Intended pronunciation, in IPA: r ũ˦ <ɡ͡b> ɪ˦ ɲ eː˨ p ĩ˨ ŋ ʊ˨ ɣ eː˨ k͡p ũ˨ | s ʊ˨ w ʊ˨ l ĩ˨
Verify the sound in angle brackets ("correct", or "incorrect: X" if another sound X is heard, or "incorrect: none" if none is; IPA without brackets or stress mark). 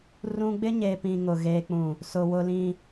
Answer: correct